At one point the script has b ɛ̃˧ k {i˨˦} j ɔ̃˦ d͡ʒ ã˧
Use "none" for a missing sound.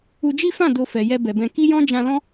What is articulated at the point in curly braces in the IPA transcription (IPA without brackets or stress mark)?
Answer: i˦